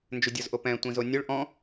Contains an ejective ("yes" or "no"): no